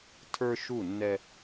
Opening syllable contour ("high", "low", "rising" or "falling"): high